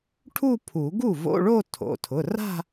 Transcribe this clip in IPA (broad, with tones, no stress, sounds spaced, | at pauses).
ʈʰ u˥˧ pʰ u˨˩˦ ɡ u˥˩ v o̰˧˥˧ ɭ o˥˧ tʰ o̰˩˧˩ tʰ ʊ˩˧˩ r a̤˥˧